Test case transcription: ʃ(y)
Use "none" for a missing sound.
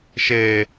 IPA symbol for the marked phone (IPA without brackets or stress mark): e